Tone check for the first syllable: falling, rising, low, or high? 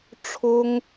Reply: high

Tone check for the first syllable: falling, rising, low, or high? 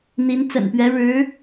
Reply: rising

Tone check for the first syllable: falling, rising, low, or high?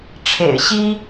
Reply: low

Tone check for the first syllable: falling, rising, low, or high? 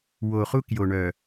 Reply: low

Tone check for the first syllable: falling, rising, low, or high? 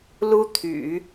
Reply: high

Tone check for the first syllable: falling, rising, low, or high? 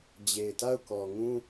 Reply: low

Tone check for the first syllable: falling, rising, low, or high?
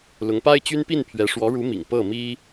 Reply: rising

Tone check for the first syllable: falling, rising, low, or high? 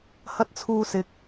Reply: high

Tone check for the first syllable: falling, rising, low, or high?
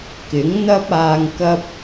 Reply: rising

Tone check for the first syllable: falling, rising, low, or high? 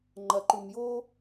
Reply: rising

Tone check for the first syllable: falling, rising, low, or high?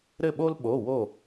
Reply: falling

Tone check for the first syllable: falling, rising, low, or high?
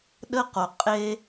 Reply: high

